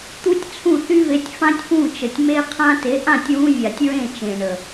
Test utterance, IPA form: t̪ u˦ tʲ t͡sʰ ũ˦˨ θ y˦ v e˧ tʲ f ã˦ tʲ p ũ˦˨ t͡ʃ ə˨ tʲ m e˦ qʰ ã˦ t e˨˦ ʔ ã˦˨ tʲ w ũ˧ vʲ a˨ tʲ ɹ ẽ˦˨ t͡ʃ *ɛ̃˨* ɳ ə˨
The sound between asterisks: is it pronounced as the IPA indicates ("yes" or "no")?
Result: no